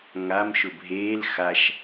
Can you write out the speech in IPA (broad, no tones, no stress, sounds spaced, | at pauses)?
ŋ a m ʃ ʊ bʱ eː l x a ʃ